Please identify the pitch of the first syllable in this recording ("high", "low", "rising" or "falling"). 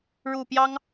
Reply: low